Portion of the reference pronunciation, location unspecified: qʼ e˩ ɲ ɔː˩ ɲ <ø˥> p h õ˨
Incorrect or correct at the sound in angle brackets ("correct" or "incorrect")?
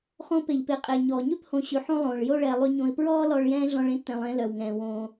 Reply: correct